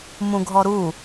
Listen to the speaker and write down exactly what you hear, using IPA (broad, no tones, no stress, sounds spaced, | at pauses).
m ũ ɡʱ ɔ ɾ u